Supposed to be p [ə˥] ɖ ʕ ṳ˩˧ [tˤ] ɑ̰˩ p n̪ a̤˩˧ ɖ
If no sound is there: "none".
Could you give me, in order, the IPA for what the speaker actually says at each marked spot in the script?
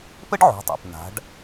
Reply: ə˥, tˤ

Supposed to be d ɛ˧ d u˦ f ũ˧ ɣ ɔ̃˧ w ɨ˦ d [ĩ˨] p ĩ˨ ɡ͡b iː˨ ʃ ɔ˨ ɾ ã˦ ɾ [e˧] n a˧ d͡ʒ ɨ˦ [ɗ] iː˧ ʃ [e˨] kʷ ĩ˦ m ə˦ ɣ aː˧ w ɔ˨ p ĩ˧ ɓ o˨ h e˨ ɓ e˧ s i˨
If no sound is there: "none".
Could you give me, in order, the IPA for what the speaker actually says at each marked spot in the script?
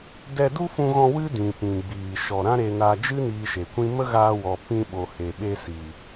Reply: ĩ˨, e˧, n, e˨

